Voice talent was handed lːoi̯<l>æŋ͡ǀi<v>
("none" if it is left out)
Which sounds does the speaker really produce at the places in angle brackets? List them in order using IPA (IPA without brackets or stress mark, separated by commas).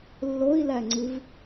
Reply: l, v